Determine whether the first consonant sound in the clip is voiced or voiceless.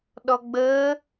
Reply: voiced